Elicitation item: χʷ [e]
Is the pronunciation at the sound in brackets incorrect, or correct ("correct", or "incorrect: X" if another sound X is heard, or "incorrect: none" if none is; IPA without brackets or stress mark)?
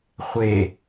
correct